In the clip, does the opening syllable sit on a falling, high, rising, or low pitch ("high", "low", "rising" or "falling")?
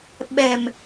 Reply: low